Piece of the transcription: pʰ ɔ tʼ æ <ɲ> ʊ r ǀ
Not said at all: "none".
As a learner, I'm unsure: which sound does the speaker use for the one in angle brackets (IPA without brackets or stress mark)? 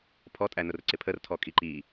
n